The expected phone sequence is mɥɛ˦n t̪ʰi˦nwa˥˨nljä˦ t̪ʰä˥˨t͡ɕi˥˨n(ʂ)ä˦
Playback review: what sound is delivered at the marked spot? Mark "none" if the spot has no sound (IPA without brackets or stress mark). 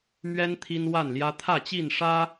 ʂ